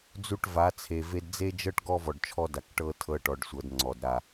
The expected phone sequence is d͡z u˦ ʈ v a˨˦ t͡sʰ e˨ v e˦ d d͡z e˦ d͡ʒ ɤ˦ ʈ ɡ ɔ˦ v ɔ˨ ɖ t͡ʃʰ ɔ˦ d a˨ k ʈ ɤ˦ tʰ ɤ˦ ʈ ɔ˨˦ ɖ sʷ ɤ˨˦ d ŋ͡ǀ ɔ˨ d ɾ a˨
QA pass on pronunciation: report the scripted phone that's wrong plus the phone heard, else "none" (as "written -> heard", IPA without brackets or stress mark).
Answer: none